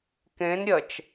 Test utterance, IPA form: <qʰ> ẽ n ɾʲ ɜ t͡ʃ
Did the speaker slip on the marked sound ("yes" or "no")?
yes